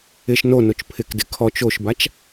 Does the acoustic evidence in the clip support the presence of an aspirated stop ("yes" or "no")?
yes